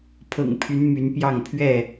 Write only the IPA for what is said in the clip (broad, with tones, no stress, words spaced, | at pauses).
pʰɤ̰˨˩ŋpʰy˨˦n my˨˦npjɑ˥˨ŋ pʰɥɛ˥˨